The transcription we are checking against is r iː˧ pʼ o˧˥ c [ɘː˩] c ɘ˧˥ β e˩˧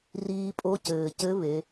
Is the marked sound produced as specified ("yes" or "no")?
yes